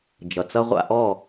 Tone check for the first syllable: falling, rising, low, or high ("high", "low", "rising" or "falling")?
low